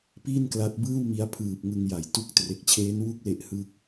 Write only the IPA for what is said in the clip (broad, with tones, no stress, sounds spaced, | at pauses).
p iː˥˩ n k l a˦˥ t̚ b ɯː˥˩ w m i˦˥ a̯ pʰ ɯː˨˩ p̚ ŋ ɯ˧ ŋ j a˨˩ j t u˦˥ k̚ t r e˨˩ k̚ t͡ɕʰ eː˦˥ n w u˥˩ k̚ l e˦˥ ʔ h ɯ˦˥ k̚